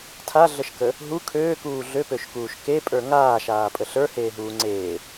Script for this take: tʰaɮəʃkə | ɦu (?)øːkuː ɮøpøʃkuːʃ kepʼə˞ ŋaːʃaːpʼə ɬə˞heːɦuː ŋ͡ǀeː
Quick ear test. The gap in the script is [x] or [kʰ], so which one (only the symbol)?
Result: kʰ